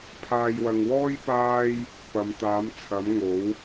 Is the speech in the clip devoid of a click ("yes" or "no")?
yes